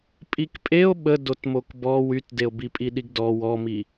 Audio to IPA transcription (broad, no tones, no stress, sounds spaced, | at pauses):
pʼ i k pʼ e o̯ ɓ ə d o t m o k b ɔ w y t d e o̯ b i pʼ i ɗ i ɡ d ɔ w ɔ m i